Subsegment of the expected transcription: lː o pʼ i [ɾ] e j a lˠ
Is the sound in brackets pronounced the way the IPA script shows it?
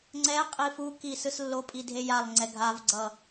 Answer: no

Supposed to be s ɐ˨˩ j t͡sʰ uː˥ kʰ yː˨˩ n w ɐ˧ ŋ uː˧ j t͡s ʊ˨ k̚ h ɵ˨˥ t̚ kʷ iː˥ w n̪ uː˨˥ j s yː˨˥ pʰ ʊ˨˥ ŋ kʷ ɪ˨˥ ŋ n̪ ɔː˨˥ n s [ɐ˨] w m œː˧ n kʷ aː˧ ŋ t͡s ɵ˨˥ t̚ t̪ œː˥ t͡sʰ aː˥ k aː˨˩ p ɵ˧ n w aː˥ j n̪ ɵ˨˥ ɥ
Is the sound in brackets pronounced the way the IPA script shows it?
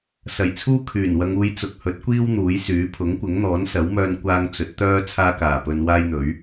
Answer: no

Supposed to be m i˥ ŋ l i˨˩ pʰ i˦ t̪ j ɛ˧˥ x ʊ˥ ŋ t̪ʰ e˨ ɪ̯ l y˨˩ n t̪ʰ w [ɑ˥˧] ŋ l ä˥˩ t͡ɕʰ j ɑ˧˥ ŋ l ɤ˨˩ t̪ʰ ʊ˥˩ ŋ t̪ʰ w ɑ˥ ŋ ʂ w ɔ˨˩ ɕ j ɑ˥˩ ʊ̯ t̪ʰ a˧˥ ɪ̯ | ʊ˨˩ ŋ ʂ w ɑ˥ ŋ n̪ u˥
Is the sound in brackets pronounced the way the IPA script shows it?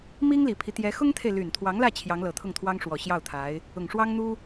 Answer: no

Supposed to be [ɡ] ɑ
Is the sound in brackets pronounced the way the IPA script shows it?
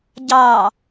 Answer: no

